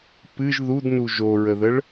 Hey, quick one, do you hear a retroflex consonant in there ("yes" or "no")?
yes